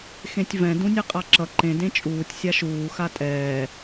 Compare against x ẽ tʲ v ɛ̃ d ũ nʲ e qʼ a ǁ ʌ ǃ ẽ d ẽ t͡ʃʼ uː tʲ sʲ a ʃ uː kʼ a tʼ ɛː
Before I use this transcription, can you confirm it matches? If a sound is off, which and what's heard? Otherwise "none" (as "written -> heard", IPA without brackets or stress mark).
kʼ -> x